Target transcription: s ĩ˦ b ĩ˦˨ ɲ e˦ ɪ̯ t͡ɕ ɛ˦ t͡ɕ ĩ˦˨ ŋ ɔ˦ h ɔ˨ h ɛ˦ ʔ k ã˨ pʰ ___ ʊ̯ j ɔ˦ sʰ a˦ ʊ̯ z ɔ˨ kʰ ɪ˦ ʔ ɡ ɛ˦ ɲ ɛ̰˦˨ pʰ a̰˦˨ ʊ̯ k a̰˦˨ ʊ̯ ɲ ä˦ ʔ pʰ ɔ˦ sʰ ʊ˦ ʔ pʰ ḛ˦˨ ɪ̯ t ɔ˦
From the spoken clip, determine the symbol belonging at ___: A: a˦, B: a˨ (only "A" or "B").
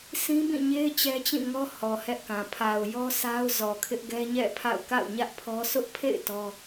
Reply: B